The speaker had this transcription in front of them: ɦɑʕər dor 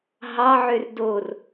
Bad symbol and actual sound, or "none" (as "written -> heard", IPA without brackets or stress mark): ə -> ø